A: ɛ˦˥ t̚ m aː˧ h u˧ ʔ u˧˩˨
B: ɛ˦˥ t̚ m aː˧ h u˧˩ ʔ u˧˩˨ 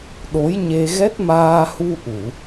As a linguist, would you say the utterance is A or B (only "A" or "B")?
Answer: A